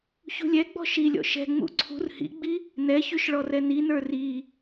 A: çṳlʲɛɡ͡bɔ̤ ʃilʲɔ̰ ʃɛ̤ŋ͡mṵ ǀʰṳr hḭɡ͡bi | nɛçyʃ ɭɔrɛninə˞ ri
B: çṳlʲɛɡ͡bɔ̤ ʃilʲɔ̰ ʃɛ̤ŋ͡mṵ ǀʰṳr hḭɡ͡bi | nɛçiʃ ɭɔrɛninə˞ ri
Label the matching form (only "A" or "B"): A